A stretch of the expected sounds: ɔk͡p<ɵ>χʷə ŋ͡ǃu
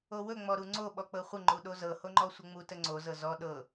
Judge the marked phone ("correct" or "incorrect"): incorrect